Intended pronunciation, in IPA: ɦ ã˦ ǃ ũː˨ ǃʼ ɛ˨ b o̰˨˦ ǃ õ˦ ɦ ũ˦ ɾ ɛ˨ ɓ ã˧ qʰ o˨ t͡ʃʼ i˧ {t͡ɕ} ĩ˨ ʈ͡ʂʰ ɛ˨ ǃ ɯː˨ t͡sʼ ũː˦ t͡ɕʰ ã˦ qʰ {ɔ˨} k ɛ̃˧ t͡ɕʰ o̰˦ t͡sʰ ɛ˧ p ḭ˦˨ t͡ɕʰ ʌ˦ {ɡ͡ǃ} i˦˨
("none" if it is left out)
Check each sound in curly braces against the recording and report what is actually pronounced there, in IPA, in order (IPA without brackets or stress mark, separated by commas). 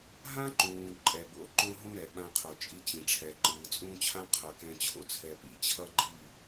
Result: t͡ɕ, ʌ˨, ɡ͡ǃ